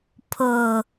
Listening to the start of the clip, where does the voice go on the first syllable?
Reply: low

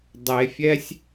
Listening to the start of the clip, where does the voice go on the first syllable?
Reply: low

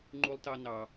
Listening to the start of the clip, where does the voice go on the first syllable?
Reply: high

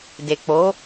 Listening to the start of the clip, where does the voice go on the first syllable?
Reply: low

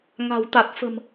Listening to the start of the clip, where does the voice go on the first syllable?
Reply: low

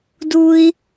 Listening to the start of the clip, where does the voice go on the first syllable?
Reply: low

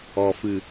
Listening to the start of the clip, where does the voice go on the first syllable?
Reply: low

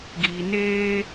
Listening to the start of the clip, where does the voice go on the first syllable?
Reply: low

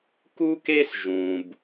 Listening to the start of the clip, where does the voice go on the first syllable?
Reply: high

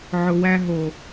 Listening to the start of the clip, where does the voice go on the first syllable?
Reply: low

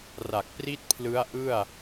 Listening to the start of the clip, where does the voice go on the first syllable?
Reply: low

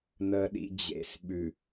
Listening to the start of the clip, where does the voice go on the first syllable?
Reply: low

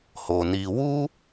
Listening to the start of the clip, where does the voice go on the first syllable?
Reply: low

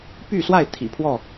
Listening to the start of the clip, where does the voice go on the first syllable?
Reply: falling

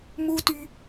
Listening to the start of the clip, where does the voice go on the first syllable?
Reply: high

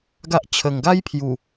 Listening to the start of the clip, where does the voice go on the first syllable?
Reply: high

